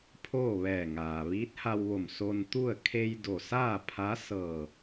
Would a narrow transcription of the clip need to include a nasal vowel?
no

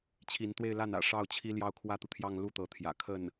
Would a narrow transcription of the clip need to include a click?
no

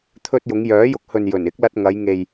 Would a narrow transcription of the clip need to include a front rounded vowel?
yes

